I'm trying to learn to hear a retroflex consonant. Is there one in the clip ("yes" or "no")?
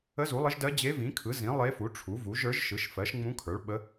yes